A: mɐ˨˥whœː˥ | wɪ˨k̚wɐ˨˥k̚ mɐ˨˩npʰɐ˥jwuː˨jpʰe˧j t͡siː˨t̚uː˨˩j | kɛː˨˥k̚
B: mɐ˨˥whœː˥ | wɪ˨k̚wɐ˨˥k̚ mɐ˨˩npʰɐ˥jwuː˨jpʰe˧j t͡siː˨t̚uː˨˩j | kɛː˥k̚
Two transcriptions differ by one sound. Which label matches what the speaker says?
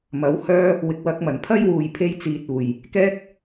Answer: B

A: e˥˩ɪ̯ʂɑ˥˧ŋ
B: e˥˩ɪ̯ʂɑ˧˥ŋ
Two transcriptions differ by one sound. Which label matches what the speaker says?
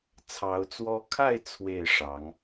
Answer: B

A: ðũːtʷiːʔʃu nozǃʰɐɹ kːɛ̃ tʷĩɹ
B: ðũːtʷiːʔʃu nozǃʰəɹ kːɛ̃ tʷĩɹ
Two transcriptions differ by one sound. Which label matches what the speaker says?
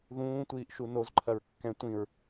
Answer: A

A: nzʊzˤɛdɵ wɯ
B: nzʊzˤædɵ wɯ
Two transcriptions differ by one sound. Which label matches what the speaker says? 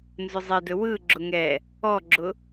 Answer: A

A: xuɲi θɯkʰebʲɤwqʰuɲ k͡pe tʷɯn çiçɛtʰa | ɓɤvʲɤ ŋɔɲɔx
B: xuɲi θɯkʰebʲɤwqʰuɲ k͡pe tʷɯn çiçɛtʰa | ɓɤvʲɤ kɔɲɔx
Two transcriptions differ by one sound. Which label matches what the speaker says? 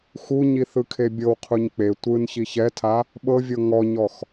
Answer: A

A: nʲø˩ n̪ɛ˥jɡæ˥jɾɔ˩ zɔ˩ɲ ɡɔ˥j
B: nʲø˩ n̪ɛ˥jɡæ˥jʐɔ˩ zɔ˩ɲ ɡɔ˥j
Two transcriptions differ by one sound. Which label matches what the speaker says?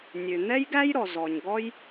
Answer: A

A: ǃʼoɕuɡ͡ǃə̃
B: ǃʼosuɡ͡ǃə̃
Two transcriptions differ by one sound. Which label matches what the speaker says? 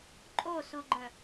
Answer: B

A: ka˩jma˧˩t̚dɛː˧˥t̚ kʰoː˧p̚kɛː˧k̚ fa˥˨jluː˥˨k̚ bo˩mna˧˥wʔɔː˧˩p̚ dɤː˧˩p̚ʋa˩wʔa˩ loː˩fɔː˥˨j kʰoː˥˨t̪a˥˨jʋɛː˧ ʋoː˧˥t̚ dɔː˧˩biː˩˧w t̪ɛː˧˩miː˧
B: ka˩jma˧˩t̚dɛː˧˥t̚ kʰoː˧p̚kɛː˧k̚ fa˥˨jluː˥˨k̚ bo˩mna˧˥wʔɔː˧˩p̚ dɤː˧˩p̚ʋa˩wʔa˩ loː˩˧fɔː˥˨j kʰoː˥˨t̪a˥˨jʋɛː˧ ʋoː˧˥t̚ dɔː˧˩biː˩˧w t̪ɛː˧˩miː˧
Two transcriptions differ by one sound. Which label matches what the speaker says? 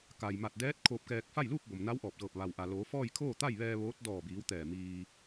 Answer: B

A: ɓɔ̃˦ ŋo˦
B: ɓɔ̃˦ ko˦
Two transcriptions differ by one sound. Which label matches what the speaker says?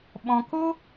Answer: B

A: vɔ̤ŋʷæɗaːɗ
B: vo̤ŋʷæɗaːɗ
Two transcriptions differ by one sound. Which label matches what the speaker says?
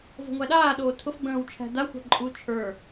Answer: B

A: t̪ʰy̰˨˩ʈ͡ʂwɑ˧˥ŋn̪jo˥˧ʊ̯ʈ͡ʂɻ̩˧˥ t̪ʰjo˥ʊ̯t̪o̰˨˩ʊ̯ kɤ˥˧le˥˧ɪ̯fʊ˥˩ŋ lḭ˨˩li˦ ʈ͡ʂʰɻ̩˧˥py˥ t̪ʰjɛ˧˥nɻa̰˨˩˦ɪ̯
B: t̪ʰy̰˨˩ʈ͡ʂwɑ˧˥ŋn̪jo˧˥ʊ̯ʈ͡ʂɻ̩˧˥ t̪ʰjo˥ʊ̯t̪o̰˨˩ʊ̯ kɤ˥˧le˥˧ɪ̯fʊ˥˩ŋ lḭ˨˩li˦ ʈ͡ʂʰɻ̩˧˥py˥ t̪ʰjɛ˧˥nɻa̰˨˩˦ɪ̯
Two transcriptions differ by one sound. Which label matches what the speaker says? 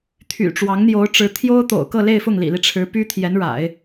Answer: B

